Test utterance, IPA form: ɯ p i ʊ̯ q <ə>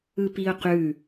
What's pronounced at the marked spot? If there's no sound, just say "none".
ʉ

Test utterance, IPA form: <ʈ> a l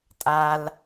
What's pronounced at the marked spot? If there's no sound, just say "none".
tʼ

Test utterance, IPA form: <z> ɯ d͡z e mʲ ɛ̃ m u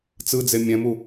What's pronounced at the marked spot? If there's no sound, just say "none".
t͡s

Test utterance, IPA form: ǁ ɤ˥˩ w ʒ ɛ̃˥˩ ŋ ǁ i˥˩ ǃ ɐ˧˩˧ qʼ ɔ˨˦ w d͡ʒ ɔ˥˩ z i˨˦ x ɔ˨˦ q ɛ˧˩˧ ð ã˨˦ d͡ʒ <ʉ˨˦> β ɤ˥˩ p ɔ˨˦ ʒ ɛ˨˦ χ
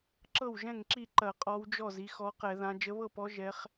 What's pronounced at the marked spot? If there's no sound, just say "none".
ə˨˦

